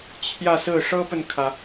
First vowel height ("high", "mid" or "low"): low